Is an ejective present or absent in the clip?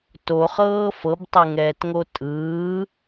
present